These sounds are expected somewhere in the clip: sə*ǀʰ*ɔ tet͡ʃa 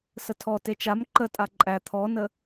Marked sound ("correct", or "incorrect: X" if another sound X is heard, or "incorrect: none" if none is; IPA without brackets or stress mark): incorrect: tʰ